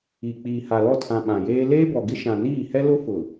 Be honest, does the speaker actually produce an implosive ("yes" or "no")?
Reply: yes